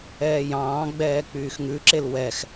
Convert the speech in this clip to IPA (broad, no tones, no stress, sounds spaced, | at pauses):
ɛː j ɑ̃ː ɡ͡b ɛː k͡p yː x ŋ ʉ ǁ e l w ɛ x